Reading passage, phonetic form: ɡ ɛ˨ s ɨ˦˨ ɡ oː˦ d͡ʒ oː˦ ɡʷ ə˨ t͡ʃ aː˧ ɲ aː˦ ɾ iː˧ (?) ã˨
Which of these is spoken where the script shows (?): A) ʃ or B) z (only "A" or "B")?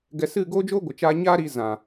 B